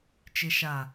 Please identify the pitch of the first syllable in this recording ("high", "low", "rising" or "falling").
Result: low